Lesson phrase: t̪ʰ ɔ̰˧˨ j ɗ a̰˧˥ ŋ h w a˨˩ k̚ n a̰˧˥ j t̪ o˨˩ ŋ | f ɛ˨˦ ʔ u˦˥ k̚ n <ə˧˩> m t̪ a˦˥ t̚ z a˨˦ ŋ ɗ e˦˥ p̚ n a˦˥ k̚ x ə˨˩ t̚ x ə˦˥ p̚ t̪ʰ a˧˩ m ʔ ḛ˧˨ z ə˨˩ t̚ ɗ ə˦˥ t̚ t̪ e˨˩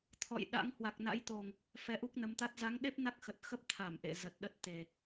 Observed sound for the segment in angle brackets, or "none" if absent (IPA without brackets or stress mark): ə˨˦